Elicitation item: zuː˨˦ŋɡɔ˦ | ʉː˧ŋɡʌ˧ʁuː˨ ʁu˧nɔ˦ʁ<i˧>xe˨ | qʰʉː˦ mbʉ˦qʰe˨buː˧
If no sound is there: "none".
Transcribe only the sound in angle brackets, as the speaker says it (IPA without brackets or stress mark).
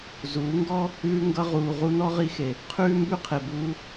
i˧